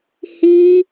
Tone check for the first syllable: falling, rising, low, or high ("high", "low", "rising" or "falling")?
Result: high